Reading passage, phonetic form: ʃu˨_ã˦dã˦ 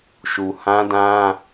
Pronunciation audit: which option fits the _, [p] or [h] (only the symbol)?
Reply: h